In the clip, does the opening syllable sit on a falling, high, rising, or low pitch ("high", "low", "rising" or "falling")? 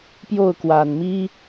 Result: falling